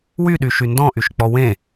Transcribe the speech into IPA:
wyɗyʃy ndɔ̃ʔyʃk͡pɔ wẽ

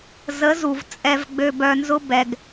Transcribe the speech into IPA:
zə˨˦zu˨v t͡sʼɛ˧vɡ͡bø˧bœ˧nzʊ˦ bɛ˧ɡ

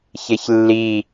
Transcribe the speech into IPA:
çeçlːi

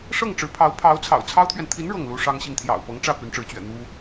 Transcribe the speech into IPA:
ʂɤ˥˩ŋʈ͡ʂɻ̩˧˥pʰɑ˧˥ʊ̯ pʰɑ˧˥ʊ̯ t͡sʰɑ̰˨˩ʊ̯t͡sʰɑ˥ʊ̯t̪ʰɥɛ˨n t̪ʰi˧˥n ɻɤ˥˩ŋlu˥ʂɑ˥ŋɕi˥˩ŋ t̪ʰjɑ̰˨˩ʊ̯pɤ˧˥ŋʈ͡ʂä˥˩ py˧˥nʈ͡ʂɻ̩˧˥t͡ɕɥɛ̰˨˩ n̪u˥

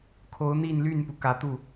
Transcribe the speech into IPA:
kʰo˧˥ʊ̯n̪i˥˧nly˥˩npu˩ kä˨˩t̪u˥˩

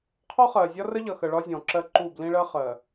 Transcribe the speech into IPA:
qʰɔ˦χɜ˨ zʲɒ˦rə˦ʎʌ˨xə˨ ɭɒ˦zʲɔ̃˨ǁɜ˦ǃu˦˨ blĩ˦ɭɜ˦χɜ˨

